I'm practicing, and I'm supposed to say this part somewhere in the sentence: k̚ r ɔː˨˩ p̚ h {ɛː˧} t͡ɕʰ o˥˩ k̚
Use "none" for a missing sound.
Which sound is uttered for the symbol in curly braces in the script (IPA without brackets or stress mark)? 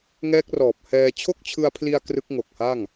ɛː˧